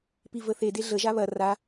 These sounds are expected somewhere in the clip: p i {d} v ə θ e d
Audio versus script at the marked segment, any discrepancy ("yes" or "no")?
yes